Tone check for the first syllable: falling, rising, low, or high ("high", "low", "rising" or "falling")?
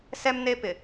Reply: high